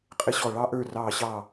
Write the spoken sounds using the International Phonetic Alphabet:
qʼ ɪ˧ ɕ ɔ˧˩ ɭ ɑ˧ ʔ ə˞˧˩ r ɑː˧˩ ɕ ɑː˧˩

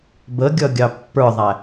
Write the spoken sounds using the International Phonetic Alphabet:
b ə ɡʲ ʌ ɡʲ ɑ pː ə˞ ðˤ æ

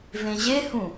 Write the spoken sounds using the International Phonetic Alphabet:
v ẽ ʑ e h ũ

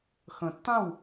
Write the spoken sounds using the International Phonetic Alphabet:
x ə̃˨ tː ã˦˨ w

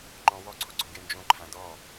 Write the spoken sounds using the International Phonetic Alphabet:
ŋ͡ǃ ɔ̃ w ɔ ǀʰ o ɡ͡ǀ ɔ̃ ɡ ɪ n d͡ʒ õ ǃʰ ã d ɔ

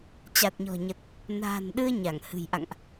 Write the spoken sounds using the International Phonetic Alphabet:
t͡ɕ a˨˩ t̚ ɲ ɔ̤˨˩ ɲ ə˨˩ t̚ | n a̤ː˨˩ n ɗ ɨ˧ ə̯ ɲ a˧˩ ŋ h ɨ̤˨˩ j ʔ a̰˧˨ ŋ ʔ

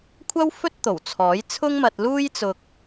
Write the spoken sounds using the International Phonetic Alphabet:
kʷʰ ɐ˥ w f ɵ˥ t̚ t̪ o˨˩ w t͡sʰ ɔː˨˥ j t͡sʰ ʊ˥ ŋ m ɐ˧ t̚ l uː˥ j t͡s ʊ˧ k̚

